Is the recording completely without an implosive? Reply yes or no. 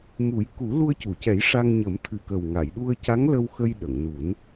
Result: no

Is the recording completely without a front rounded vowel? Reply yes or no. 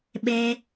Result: yes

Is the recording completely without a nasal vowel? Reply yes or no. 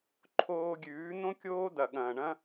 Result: no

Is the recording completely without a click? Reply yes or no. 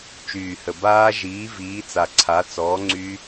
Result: no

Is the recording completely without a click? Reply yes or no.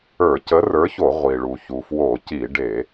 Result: yes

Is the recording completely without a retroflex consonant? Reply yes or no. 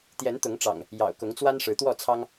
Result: no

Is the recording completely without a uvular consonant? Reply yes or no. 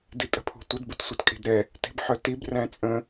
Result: yes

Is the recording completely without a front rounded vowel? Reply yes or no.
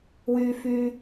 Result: no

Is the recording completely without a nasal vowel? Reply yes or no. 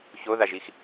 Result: yes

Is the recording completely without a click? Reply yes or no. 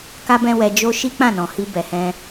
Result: yes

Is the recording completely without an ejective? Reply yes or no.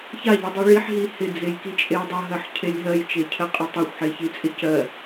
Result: no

